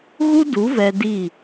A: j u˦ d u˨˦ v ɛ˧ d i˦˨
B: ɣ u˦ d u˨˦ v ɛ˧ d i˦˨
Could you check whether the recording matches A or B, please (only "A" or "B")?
B